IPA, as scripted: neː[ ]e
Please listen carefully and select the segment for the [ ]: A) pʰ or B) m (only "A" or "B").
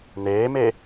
B